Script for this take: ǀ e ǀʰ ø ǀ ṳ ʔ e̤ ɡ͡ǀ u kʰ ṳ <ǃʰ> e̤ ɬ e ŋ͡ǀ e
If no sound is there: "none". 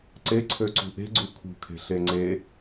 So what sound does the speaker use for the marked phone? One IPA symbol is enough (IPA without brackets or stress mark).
kʰ